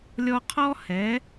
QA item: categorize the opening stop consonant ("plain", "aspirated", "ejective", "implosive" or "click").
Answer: aspirated